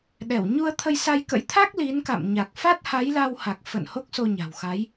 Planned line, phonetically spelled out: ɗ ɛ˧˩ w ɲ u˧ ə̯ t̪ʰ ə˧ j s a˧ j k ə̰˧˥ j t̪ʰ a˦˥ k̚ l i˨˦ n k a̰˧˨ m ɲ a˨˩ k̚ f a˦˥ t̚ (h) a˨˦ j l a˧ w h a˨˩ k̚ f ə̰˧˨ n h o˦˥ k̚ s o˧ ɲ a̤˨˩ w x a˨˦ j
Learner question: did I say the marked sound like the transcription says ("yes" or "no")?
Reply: yes